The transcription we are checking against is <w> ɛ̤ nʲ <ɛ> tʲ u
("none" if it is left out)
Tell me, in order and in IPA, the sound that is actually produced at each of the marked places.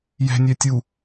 j, ɛ

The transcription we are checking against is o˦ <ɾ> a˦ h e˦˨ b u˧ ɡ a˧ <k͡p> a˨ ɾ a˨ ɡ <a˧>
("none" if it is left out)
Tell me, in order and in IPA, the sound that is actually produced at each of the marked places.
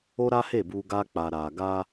ɾ, k͡p, a˧

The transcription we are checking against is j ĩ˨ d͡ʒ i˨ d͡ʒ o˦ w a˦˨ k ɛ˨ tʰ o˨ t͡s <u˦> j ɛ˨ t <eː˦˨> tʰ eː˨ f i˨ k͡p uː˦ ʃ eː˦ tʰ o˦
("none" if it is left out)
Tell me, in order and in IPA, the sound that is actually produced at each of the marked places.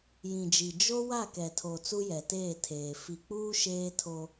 u˦, eː˦˨

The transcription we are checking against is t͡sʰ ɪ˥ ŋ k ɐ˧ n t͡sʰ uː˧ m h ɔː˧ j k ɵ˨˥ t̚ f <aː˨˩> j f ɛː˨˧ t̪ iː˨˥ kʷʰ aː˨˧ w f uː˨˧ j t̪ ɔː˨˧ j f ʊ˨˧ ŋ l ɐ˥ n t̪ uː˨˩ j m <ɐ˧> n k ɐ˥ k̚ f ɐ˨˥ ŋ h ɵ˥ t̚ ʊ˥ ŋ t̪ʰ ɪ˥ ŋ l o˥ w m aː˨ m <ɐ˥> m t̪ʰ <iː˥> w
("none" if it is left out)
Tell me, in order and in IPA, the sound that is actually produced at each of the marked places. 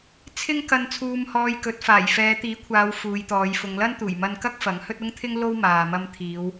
aː˨˩, ɐ˧, ɐ˧, iː˨˧

